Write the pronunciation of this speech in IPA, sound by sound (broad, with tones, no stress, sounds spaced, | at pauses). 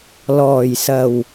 l ɔː˨˩ j s ɐ˨˩ w